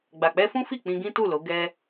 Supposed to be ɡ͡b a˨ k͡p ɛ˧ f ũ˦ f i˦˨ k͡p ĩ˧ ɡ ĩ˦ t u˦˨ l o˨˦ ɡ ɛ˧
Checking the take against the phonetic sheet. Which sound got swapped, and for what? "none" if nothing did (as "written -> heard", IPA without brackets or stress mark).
none